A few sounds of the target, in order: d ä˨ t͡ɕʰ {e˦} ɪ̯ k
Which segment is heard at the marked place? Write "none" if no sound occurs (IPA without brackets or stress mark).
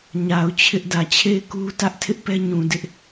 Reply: e˦˨